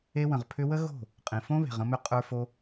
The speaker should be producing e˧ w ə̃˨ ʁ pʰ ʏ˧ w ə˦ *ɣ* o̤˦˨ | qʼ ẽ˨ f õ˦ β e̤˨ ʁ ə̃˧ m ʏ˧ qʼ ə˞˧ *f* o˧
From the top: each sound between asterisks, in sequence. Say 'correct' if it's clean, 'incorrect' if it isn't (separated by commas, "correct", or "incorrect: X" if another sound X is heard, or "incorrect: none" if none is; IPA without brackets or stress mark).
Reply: correct, correct